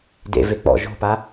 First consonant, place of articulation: alveolar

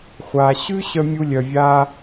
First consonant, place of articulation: uvular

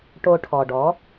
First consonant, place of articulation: retroflex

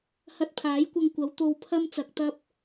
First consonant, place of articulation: glottal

